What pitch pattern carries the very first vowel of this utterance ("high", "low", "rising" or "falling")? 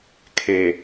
low